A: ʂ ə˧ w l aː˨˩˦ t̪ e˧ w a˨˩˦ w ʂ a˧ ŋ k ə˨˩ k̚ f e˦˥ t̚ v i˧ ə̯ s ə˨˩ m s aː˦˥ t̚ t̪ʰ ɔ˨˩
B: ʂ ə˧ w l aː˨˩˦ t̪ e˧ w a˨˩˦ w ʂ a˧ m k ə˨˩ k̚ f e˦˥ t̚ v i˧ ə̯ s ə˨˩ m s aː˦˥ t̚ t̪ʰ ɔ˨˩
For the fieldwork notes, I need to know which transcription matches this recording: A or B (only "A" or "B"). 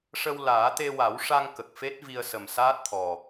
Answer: A